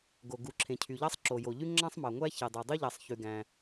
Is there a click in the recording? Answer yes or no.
yes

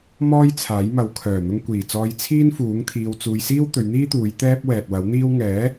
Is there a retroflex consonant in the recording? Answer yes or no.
no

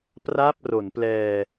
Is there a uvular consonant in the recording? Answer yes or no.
no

